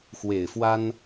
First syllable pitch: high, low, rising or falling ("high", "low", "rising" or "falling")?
low